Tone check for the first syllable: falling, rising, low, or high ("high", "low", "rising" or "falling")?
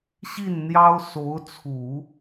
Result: falling